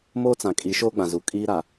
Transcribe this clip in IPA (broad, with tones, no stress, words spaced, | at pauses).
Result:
moː˦t͡sã˨ kʼi˨˦ ʃoː˦ɡ͡bã˨zu˨ kʼiː˦ɾa˨